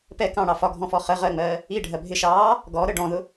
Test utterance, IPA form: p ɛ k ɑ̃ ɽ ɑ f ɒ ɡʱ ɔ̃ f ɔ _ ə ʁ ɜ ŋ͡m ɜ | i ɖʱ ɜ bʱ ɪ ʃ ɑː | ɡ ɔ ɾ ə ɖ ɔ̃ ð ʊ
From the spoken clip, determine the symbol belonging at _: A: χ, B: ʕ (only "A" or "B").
A